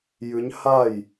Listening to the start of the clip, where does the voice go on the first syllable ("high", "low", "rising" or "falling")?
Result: rising